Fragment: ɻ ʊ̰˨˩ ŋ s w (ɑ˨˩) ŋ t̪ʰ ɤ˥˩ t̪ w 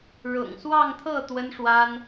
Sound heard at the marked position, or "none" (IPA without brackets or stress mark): ɑ˥˧